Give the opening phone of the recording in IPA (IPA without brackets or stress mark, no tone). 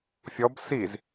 fʲ